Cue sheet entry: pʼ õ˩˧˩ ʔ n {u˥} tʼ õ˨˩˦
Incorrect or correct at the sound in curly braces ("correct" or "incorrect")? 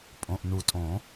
incorrect